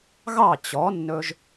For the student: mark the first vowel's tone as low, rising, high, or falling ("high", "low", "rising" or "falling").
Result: falling